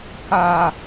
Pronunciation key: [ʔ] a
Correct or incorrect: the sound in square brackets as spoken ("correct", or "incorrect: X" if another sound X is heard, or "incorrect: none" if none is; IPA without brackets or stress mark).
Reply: incorrect: k